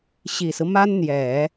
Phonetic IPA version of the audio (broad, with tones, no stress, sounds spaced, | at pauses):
ɕ i˨˩ s ɹ̩˦ m a˥ n n̪ j ɛ˨˩˦